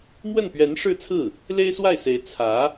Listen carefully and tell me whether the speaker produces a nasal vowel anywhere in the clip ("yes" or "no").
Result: no